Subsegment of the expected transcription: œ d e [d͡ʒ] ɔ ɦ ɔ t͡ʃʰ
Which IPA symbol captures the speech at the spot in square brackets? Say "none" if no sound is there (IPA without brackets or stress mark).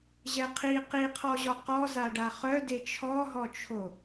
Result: t͡ʃʰ